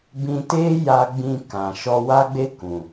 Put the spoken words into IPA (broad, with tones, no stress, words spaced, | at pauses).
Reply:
bĩ˧teː˦ ja˦ ɡ͡bĩ˧kã˨ ʃɔ˧wa˦ɡ͡be˦ kũ˨